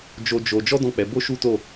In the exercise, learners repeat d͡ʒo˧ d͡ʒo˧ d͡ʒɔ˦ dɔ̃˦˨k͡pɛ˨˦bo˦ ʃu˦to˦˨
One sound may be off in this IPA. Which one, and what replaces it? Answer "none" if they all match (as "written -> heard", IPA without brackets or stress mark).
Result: none